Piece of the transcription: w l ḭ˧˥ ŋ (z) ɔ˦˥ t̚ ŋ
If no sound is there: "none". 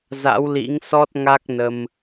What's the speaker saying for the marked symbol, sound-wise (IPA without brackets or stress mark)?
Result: s